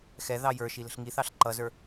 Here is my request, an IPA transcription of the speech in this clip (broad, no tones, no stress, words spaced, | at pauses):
xɛ ðɑjə˞ʃi lə̤ɬŋiθɑɬ ǃʌzə˞